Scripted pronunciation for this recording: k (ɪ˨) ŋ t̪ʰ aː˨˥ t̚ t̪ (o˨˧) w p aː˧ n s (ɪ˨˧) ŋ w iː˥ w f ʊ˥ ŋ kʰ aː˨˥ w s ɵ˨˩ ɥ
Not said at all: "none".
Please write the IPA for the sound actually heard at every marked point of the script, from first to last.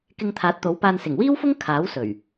ɪ˧, o˨˥, ɪ˨˩

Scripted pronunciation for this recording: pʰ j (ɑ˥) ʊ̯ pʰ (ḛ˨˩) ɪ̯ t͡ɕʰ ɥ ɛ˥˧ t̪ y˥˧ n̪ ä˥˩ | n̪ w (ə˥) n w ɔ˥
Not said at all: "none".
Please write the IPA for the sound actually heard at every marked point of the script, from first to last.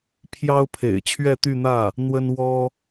ɑ˥, ḛ˨˩, ə˥

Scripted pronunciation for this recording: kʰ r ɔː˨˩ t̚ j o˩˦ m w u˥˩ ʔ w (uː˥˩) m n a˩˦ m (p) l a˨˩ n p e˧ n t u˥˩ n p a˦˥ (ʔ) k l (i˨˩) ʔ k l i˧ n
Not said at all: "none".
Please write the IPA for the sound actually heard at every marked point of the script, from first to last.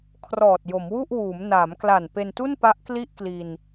uː˩˦, k, ʔ, i˥˩

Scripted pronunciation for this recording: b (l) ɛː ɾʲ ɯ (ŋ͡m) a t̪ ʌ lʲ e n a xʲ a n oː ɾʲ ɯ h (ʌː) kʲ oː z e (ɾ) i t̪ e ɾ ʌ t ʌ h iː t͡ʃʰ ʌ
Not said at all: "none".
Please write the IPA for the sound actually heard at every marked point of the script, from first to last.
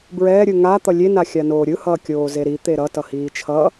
ɹ, ŋ, ʌː, ɾ

